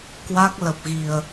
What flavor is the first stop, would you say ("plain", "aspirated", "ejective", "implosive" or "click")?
plain